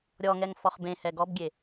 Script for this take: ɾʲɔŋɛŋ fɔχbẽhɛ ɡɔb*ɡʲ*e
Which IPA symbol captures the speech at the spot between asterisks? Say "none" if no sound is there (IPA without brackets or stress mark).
ɡʲ